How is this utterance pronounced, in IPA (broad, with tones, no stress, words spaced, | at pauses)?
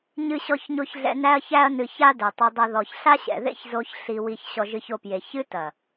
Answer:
ɲɨ˦ɕɔ˦çɲo˦çɮɛ̰˦ næ˦ɐ̯çæ˦ɐ̯nɨ˧ça˦ dɛ˨tˤɐ˧dˤɐ˧ ðɔ˨çɬa˦ ɕɛ̰˨ðḛ˦çzo˧ç ɬi˧wi˧ç ɕɔ˧ʒɨ˧ço˧pje˨ çɨ˦tɐ˨